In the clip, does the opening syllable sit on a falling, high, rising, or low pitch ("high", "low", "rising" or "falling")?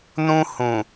high